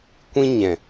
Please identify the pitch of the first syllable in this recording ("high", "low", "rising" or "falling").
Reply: high